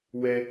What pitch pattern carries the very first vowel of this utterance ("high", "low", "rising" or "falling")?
high